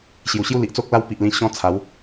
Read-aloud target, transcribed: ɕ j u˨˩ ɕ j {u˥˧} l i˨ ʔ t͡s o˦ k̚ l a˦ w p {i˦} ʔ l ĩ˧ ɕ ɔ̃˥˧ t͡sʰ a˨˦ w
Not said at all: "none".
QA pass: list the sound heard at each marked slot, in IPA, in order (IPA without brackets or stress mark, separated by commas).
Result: u˥˧, i˨